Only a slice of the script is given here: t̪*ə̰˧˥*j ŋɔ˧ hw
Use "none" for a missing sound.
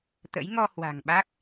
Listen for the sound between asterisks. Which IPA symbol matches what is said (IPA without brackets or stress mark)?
ə̰˧˥